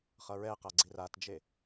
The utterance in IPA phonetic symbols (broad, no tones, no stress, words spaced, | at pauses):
χʌɹɛqa ɡ͡ǀiratd͡ʒe